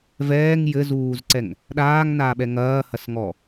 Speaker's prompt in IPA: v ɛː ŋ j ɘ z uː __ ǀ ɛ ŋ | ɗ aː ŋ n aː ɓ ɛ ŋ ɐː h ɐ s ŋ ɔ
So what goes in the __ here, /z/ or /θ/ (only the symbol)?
z